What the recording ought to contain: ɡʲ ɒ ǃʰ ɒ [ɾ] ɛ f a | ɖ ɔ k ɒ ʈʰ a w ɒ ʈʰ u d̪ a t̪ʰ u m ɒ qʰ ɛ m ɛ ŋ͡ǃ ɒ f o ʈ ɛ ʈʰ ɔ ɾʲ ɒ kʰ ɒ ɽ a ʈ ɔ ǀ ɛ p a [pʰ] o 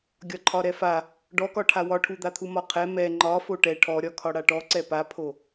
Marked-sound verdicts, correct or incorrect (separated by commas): correct, correct